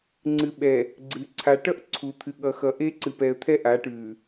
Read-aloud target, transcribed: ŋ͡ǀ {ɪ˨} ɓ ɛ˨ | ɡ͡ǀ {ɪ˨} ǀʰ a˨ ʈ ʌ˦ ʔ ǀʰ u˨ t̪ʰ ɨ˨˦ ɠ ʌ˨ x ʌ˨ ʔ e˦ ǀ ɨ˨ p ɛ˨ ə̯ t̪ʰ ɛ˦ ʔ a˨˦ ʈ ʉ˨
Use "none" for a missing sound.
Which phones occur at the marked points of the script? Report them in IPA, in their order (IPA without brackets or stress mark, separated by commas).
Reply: ɨ˨, ɨ˨